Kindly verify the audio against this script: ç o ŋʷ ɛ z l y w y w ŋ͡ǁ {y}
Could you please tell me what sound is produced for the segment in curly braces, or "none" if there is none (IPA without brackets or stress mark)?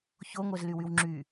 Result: y